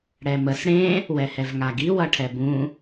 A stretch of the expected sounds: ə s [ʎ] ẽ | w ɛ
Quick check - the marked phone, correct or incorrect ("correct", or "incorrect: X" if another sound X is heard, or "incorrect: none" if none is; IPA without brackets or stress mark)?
incorrect: ɽ